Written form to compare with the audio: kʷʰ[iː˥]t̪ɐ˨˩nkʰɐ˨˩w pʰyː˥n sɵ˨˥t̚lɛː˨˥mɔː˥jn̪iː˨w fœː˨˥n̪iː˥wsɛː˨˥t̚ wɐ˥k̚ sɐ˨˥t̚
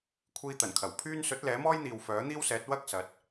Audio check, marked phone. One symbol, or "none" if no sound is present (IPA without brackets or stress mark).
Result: iː˧